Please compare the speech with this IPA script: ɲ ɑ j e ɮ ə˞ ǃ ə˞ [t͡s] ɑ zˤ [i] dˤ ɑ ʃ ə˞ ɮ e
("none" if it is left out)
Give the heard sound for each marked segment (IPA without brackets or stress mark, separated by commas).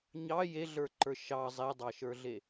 ʃ, e